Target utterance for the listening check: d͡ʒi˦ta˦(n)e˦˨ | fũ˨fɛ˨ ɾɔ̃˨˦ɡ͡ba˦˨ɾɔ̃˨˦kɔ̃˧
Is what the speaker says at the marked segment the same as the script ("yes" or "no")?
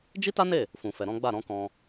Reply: yes